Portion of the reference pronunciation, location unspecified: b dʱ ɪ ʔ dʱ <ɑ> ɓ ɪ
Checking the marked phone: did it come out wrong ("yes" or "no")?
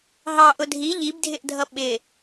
yes